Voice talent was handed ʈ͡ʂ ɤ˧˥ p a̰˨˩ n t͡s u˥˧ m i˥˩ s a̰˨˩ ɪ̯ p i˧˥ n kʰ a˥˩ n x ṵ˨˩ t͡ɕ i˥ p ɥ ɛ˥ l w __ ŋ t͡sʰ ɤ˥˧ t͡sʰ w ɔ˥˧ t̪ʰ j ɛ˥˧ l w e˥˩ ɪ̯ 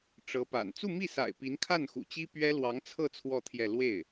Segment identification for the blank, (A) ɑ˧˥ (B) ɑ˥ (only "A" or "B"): A